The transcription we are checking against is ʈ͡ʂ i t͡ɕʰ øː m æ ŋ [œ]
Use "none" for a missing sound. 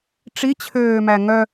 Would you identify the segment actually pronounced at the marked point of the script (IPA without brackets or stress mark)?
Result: œ